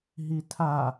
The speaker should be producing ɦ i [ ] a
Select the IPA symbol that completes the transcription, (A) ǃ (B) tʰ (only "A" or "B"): B